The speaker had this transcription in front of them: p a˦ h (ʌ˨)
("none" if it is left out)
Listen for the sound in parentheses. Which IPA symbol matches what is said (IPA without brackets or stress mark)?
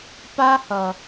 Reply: ʌ˨